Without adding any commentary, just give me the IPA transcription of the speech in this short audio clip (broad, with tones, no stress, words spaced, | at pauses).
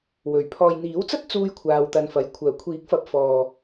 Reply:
wɵ˨˩ɥ pʰɔː˨jn̪iː˨˥wt͡sɐ˥t̚ t͡suː˧jkʷʰaː˨wt̪ɐ˨n fɐ˨j kʷʰœː˨˩kʷʰiː˨˥k̚fɐ˨˥p̚ fɔː˨